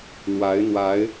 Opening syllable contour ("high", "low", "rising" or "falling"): rising